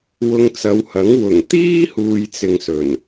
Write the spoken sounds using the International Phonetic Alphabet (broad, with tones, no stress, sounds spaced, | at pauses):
w ʊ˧ ŋ t͡s ɐ˨˧ w h ɐ˨˥ ŋ w ʊ˨˩ ŋ t̪ iː˥ h uː˨ j t͡s ɪ˨ ŋ s ɵ˨˩ n